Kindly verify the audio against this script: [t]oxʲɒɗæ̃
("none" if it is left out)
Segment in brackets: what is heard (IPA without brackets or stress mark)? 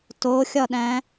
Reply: t